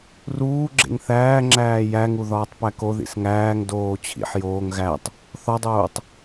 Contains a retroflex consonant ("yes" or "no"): no